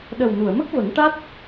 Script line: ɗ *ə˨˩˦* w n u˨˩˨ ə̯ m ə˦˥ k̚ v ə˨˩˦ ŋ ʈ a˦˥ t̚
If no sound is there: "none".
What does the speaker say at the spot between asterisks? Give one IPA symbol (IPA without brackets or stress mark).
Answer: ə˨˩